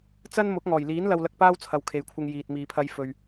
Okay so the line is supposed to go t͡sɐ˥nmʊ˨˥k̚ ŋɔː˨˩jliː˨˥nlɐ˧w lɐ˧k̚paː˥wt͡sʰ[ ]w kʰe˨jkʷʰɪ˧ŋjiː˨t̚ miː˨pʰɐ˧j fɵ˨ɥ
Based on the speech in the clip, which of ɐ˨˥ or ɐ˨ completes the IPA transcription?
ɐ˨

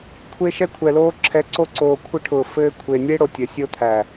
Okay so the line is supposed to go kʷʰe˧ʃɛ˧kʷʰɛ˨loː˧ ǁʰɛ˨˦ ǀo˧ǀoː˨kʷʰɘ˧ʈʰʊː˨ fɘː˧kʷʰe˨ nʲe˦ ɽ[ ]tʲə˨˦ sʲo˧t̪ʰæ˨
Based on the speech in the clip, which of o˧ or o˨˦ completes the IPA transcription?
o˧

